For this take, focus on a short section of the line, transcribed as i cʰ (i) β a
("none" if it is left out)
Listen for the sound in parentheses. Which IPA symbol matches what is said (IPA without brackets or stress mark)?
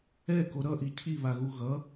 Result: i